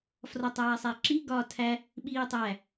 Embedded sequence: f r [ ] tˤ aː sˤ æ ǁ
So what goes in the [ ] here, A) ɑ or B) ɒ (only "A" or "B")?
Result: B